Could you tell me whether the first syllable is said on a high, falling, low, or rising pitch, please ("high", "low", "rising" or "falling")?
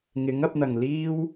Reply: rising